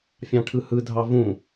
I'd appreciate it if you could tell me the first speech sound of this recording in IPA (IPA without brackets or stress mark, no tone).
fʲ